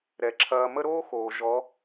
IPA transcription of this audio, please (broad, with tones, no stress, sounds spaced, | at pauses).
ɾ ɛ˨ ǁʰ ɐː˧ m ə˦ ɾ oː˦ x oː˨ ʒ ɔ˨˦